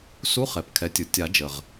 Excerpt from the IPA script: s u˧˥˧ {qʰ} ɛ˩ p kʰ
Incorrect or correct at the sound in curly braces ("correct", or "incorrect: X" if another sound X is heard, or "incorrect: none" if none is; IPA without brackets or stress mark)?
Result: incorrect: χ